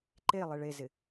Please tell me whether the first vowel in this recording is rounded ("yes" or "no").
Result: no